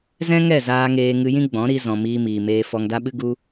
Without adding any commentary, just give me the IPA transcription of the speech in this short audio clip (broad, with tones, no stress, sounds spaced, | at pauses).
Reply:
z ɛ̃˦ ŋ ɛ˦˨ z aː˧ ŋ eː˧ ŋ ɨ˧ j ĩ˦ ɡ͡b ɔ̃˨˦ ɾ i˧ z ɔ̃˨ m iː˧ m iː˨ m eː˧ f ɔ˧ ŋ d a˦ ɓ ɨ˦ ɡ u˧